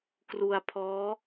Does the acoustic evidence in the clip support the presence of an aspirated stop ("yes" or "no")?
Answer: yes